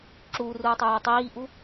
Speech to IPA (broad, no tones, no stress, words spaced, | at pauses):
ǁuːruːtˤʌjey̯ tˤiːʔu